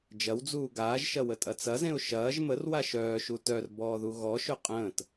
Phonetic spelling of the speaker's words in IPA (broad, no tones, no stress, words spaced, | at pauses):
d͡ʒɐwd͡zuː ɡaːʒʃɐwətʼɐ t͡sɐzẽʊ̯ ʃɐːʒ mərwa ʃœːʃu tœrbɔːðu ɣɔʃɵ qʼə̃ːt